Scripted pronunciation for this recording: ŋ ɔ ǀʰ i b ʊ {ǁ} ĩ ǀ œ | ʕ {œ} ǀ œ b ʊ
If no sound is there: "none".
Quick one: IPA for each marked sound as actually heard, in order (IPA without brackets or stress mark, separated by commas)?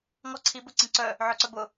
ǀ, œ